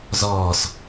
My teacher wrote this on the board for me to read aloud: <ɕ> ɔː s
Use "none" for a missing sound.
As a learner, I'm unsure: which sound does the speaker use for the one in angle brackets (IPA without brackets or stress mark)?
z